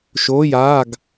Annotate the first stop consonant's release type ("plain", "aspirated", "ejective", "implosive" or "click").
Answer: plain